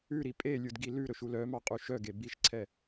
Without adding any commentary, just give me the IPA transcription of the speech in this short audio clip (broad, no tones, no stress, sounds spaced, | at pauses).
ʉ ɾ i pʼ e lʲ u d ɡ i l ʉ ɾ ɵ ʃ u l œ m ɑ qʼ u ʃ œ ɡ e b i ʃ ǀʰ ɛ